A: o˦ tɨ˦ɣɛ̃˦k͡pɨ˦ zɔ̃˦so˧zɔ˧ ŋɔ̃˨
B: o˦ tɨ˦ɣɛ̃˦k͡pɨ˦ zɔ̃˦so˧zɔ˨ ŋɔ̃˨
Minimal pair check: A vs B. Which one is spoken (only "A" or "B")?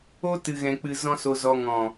A